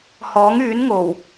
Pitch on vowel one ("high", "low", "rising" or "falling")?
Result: rising